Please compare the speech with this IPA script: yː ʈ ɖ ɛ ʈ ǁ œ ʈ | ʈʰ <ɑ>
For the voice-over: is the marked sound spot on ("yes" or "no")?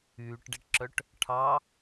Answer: yes